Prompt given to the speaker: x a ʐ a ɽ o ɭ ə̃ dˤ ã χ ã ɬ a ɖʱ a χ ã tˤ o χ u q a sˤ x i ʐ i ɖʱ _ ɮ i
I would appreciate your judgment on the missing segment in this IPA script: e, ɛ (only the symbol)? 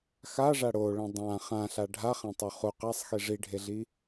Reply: e